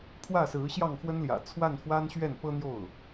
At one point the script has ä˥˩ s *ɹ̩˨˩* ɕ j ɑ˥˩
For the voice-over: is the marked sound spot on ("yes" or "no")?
no